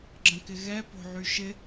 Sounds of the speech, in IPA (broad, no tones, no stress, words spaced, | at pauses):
ɡ͡ǁə̃kɪɣɛ po̤ʕyʃɪ